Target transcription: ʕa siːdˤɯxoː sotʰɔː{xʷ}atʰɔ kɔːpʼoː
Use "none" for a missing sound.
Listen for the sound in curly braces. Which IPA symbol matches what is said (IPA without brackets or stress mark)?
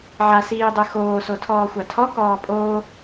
xʷ